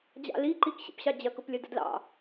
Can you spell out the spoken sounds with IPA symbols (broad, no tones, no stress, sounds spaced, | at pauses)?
d͡ʑ ɑ̰ l i ǃ i k ɕ ḭ p ɕ ɑ d͡ʑ ɐ k ʊ p lʲ ɐ d ə̰ d l ɑ̰